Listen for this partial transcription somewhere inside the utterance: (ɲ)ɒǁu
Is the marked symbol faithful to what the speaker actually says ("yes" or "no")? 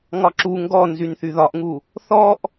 no